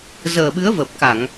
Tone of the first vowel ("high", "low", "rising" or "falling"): low